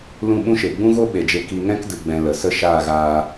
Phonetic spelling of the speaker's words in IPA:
l ũ˦˨ ɓ ũ˦ ʃ e˨ ɡ͡b ũ˦ ɣ o˦ ɓ e˨ d͡ʒ e˧ k i˧ ŋ ɛ̃˦ k d ɨ˨ ɡ͡b ɛ̃˨ l ə˨ s ə˦ ʃ aː˦˨ ɣ aː˧

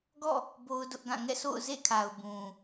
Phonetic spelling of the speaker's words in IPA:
ɡ ɔ̰˦˨ | b o˦ ʊ̯ d ʊ˦ ʔ ɡ ã˦˨ ŋ ɛ̰˦˨ sʰ o̰˦˨ ʊ̯ z ḛ˦˨ kʰ a˨ ʊ̯ b ũ˨

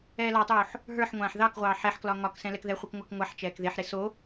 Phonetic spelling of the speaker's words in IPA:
ɛː l ɑ tˤ oː ħ | ɦ ə˞ ħ ŋʷ ãː ħ ð ɑ k ʁʷ ɑː ħ ɛ ħ k l ɒ ŋ ɒ k s ɛ̃ l ɛ k ð ɛ χʷ e k ŋʷ a k ŋʷ a ħ t͡ʃ ɛː k ð e ħ ɾ e s o

